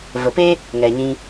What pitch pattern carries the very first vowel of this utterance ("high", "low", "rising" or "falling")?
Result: low